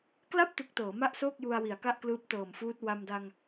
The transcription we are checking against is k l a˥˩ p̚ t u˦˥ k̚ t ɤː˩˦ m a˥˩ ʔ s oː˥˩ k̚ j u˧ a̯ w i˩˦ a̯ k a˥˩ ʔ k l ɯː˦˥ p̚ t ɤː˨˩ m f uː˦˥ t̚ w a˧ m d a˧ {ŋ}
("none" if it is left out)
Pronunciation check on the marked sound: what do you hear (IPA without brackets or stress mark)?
ŋ